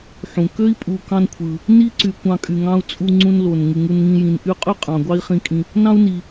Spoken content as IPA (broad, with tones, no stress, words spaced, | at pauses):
ħũ˩kø˥i̯ pʼu˨kɑ̃˦nkʷʰɯ˩ | ni˥ǀy˨ kʷɑ̃˦kʼy˨ŋɑ̃˥u̯t͡sʼu˦ ŋ͡ǀũ˦nlo˩n ŋɯ˩ŋu˨nŋĩ˨ jĩ˩nʔy˦qʼy˥qʼɑ̃˩ ɡʷɑ˦i̯χĩ˨kʼĩ˨ | nɑ̃˥u̯ni˨